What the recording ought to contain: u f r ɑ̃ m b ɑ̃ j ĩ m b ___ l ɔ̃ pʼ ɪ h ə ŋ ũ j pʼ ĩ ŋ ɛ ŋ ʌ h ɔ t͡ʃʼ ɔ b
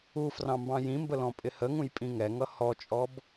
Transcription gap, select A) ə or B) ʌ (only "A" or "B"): A